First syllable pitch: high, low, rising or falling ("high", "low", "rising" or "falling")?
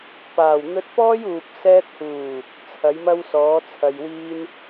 low